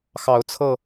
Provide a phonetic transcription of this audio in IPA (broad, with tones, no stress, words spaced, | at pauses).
xɑ˨˦ʊ̯t͡sʰɤ˧